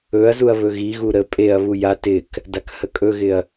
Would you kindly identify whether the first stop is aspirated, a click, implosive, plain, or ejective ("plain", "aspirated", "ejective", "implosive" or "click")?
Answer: ejective